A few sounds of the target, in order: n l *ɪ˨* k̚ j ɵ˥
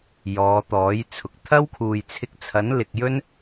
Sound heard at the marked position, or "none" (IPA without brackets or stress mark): ɪ˨